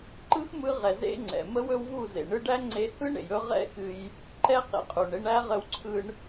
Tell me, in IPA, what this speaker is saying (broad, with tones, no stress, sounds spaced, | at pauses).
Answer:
ǃ ɯ˦ x m ɯ˧ ʁ ɛ˨ z ḛ˦ ŋ͡ǀ ɛ̰˨ m ə˦ w ɵ˦ w v u˦˨ z ḛ˨ ɳ ɯ˦ ɖ æ˦ ŋ͡ǀ e˧ h ɯ˦ ɳ ḛ˨ j ɵ˧ ʁ ɛ̰˦ x ɨ˧ j | ǃ ɛ˧ q ḛ˨ qʼ u˨ ɳ e˧ ɳ æ˦ ʁ ə˧ w ǀʰ ɯ˧ ɳ